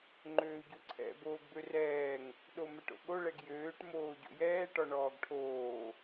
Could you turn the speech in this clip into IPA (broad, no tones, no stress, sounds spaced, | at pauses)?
ŋ͡ǃ øː ɟ o ǀʰ ɛ̰ b oː ɡ b ø r ɛː ŋ | ɗ o m ɛ ʈ o̰ ɠ o ɭ ɛ ɡ j øː ʈ m oː ɟ o̰ j ɛː ʈ ɔ ɳ ɔː ɡ ʈʰ oː